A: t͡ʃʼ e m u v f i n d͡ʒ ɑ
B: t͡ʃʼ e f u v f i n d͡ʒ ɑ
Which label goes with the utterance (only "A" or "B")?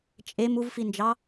A